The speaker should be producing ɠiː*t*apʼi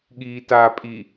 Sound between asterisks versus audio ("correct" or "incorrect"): correct